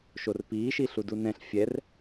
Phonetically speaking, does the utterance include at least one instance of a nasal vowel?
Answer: yes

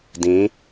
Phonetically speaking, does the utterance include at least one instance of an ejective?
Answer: no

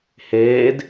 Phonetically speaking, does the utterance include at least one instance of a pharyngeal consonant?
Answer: no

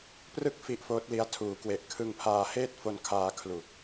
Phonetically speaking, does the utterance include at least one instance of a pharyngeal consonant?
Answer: no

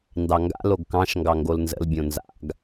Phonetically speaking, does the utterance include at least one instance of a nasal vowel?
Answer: yes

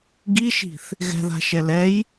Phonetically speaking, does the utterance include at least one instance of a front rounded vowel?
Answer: no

